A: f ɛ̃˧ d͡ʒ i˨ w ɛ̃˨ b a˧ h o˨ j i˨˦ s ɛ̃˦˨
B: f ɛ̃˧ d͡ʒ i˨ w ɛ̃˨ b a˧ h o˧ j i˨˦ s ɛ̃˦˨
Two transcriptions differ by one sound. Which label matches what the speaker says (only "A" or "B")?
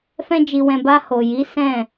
A